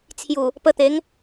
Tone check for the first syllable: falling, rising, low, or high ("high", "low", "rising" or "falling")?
low